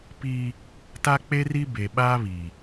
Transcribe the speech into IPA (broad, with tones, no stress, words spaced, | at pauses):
pi˦ | ta˦k͡pe˦ri˦ be˨ɓaː˦βi˨